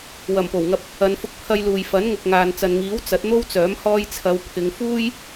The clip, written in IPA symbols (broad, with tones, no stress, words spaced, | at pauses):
wɐ˨˩mpo˨˩wŋɐ˧p̚ | ɐ˨˧nfʊ˧k̚pʰɐ˧jluː˨j fɐ˨˥n ŋʊ˨k̚ŋaː˨nt͡sɐ˨nŋiː˨˥w t͡sɐ˨˥t̚n̪o˥wt͡sœː˨˥m hɔː˧jt͡sʰɐ˨˧wpʰɪ˨˧ŋ fuː˥j